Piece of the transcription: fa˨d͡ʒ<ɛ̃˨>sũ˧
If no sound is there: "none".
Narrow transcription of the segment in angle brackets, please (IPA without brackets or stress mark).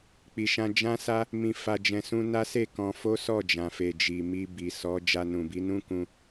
ɛ̃˨